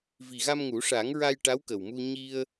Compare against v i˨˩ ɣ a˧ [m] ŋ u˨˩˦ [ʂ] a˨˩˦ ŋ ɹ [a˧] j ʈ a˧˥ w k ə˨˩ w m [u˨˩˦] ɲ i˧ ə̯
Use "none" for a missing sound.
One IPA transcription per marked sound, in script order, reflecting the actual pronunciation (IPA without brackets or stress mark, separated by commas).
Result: m, ʂ, a˧, u˧